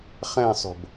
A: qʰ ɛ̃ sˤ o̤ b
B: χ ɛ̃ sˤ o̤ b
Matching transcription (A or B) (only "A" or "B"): B